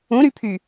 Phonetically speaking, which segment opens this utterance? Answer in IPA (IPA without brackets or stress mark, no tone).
ũ